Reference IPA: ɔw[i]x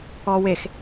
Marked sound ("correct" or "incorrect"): incorrect